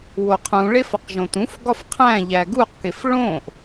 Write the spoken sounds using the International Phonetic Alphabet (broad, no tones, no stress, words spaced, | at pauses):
woqʰũɭef ɒqʒõtũfɡɒf qʰæ̃ ʎæɡuqkef ɭõʔ